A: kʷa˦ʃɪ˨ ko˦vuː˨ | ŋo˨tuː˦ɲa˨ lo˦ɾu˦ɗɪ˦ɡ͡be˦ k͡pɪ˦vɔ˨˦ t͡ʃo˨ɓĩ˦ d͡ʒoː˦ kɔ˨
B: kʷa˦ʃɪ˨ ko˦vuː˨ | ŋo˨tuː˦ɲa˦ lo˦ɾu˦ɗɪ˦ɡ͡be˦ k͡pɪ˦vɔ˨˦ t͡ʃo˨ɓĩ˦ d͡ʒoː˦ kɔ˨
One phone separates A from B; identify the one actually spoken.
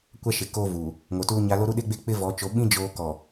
B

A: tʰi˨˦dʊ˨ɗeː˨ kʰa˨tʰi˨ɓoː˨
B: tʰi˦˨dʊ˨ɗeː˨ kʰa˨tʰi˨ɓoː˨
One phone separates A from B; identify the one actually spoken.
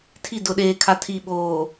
B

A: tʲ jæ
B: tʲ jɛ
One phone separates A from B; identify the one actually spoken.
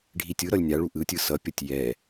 B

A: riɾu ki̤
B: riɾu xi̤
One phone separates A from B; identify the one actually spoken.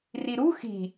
B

